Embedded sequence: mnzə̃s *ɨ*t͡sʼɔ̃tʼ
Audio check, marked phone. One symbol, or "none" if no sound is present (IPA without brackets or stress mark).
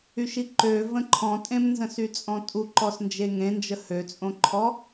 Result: y